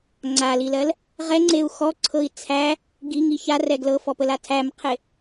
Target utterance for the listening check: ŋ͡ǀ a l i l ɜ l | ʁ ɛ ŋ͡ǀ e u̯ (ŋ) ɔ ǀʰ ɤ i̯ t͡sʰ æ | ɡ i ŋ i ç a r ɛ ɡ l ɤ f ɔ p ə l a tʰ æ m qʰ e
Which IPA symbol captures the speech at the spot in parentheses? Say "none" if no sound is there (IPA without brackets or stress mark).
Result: x